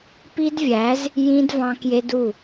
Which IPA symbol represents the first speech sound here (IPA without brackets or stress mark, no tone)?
p